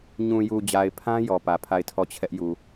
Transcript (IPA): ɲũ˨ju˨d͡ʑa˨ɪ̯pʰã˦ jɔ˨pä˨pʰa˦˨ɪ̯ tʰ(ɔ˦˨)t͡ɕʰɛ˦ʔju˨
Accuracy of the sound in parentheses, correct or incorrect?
correct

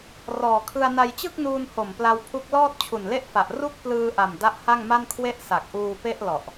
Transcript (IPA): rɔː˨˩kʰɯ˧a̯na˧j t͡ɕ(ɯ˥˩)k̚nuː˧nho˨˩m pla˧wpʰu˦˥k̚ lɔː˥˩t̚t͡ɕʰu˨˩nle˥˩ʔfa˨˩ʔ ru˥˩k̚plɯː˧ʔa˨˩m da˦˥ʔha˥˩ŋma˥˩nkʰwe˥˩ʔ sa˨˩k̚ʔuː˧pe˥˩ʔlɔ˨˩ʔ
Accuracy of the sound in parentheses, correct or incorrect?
correct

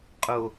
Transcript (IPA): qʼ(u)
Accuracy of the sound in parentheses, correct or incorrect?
incorrect: o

